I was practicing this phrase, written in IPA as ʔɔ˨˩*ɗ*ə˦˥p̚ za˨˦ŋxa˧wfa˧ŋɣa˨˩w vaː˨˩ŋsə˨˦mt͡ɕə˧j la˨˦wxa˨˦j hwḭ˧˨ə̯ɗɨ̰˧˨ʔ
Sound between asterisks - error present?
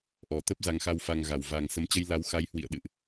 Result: yes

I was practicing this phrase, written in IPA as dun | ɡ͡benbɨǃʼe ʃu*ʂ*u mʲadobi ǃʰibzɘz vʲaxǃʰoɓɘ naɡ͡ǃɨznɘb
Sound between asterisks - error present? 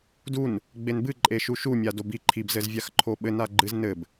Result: yes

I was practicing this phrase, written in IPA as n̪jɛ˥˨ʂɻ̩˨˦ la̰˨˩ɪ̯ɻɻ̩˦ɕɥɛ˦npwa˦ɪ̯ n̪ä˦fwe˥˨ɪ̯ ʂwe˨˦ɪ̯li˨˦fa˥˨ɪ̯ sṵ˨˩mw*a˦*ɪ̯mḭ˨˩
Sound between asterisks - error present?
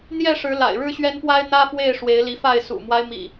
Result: no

